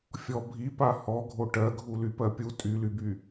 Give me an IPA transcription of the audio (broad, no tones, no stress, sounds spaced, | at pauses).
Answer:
fʲ ɔ bʱ i p a h ɔ ɡʱ o ʈ ɜ ɡʱ u l y p ɜ pʲ u tʼ y l y b y